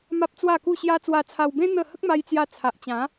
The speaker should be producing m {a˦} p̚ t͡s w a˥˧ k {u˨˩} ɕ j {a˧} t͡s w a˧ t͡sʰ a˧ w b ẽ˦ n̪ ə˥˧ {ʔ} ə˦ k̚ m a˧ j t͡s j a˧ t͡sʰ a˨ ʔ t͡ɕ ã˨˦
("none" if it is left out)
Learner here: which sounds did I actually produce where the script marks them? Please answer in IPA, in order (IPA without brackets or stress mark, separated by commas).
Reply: a˦, u˥˧, a˦, h